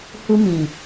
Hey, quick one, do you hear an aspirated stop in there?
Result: no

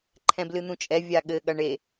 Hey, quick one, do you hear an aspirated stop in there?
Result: yes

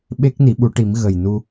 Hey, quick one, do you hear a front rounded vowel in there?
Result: no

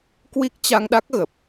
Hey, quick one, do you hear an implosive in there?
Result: yes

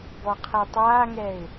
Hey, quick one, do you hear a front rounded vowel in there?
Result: no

